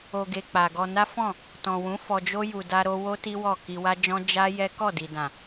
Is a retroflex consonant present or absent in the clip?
absent